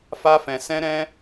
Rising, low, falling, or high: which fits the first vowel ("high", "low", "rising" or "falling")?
high